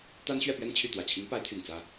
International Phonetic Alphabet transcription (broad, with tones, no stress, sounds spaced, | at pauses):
t̪ a˥ n ɕ ɥ ɛ˥˧ p ɥ ɛ˥˧ n t͡ɕʰ y˥˩ t̪ w ä˨˩ t͡ɕʰ i˧˥ ŋ p a˧˥ ɪ̯ t̪ʰ y˨˩ n t͡s ä˥